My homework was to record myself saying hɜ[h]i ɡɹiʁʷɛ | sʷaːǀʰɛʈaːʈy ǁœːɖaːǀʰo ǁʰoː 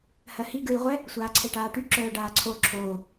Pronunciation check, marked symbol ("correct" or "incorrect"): correct